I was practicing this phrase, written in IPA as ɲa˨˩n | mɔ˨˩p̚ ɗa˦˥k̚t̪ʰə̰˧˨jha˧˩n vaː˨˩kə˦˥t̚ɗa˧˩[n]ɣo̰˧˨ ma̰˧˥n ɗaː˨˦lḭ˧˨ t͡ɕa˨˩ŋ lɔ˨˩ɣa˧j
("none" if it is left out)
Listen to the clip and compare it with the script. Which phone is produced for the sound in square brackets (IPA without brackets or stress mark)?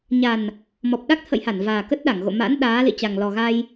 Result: ŋ